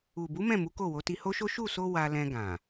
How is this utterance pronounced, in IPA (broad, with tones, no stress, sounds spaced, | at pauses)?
u˨ b u˨˦ m ɛ̃˦˨ m u˨˦ k o˦˨ w o˨˦ t i˧ h o˦ ʃ o˦ ʃ u˦˨ s o˧ w a˧ l ɛ̃˧ ɡ ã˨